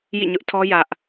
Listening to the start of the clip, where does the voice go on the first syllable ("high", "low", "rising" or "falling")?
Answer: falling